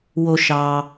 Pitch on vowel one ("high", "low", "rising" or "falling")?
high